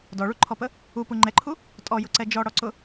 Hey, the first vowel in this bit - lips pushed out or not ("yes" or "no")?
yes